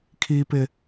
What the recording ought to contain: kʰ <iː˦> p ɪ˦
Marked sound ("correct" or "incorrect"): correct